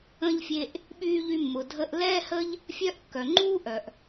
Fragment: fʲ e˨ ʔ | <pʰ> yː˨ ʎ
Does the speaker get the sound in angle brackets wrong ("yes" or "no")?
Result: yes